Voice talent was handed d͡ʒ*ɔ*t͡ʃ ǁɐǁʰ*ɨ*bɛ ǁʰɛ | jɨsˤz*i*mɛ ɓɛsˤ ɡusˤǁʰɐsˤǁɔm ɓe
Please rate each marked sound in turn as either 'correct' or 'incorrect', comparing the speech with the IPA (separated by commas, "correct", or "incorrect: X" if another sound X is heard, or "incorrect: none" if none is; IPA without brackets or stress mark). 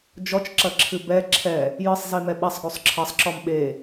correct, correct, correct